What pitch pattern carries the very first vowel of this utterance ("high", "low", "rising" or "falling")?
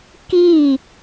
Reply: falling